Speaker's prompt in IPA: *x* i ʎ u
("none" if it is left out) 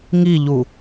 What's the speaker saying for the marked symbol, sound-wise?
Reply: ŋ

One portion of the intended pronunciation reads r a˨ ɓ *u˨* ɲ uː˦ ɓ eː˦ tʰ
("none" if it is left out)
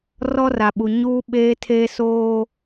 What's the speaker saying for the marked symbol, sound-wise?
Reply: u˨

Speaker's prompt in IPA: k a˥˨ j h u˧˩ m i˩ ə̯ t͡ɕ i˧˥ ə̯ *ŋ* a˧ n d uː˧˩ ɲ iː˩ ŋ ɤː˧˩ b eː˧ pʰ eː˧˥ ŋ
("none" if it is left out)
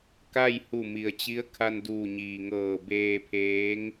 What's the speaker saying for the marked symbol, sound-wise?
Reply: kʰ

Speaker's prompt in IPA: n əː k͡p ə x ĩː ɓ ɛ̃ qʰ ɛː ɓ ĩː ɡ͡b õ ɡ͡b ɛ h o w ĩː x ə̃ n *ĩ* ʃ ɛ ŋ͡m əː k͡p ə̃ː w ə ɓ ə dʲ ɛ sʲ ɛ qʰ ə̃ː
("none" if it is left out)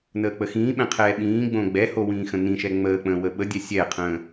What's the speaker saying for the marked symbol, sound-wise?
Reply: ĩ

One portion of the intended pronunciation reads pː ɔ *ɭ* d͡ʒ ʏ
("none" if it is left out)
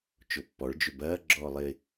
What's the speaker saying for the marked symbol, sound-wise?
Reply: ɭ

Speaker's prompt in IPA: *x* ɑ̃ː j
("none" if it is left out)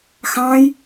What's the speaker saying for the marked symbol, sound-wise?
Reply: x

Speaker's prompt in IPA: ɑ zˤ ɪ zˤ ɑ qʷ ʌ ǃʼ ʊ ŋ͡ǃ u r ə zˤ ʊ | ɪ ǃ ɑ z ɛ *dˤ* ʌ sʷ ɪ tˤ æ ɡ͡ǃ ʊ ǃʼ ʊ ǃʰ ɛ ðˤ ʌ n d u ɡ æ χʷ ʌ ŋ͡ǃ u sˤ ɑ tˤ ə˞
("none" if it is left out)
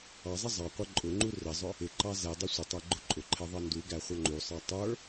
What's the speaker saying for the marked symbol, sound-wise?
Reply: dˤ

